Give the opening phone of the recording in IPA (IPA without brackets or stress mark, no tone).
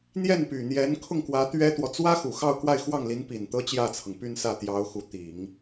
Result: n̪